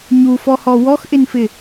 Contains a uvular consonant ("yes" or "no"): no